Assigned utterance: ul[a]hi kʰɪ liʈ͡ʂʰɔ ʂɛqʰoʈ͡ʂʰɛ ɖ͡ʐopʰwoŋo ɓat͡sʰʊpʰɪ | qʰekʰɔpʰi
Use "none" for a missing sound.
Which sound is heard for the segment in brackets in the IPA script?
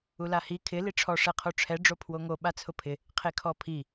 a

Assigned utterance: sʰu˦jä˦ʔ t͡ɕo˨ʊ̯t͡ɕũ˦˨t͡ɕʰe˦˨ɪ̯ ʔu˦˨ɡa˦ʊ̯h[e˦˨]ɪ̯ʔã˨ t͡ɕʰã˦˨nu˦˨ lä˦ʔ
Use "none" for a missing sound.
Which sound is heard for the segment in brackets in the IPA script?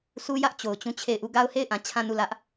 e˦˨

